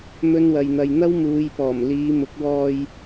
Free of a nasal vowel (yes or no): yes